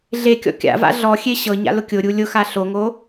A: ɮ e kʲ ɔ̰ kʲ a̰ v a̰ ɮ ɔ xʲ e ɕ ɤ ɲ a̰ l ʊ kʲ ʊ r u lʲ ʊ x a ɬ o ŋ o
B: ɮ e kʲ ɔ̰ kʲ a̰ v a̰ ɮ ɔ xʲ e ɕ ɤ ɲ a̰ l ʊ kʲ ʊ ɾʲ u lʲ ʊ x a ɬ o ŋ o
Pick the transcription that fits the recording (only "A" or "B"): B